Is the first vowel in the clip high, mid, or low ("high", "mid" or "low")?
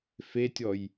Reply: mid